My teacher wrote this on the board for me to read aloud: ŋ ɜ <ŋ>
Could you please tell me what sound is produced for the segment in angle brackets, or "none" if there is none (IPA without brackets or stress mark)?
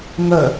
none